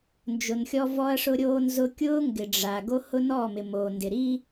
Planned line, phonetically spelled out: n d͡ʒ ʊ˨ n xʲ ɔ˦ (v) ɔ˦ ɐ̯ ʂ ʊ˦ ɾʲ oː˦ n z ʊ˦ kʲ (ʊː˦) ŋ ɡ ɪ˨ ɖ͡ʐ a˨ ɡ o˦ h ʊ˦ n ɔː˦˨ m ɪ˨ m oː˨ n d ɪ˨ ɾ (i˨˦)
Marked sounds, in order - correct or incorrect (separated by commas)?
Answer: correct, correct, incorrect